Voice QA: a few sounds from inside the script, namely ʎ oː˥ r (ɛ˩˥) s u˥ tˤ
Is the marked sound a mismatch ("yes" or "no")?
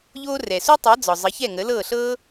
yes